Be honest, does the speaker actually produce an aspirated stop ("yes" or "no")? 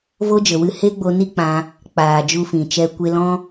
no